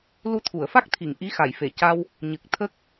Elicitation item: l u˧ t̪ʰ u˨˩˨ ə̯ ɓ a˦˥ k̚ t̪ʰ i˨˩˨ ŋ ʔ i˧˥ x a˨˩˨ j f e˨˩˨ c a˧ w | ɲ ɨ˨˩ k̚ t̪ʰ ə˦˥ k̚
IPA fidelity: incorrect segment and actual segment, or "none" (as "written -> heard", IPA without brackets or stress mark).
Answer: ɓ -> f